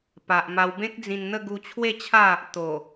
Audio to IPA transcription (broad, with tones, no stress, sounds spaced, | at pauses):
p a˨ ʔ m a˧ w b ẽ˦ k̚ d͡z ĩ˧ n n̪ ə˥˧ ɡ u˧ t͡ɕʰ w e˥˧ t͡ɕʰ a˥˧ | t̪ o˨˩